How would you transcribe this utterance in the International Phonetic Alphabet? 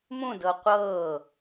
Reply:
mũdɤ qʷɤː

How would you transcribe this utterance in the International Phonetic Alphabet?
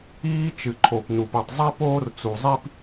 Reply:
iː˥ t͡ʃɨ˩ǃʰo˩pnu˩pɨ˩tˤ zˤi˥poː˥rt͡su˩zˤi˥p

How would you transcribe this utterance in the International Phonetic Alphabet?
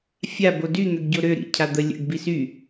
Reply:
fʲa body n̪øɡɟoɾø ɾḭ cʰad̪ə lʲə̰ɡ bisy

